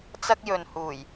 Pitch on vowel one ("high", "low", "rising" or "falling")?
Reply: high